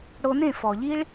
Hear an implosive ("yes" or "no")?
no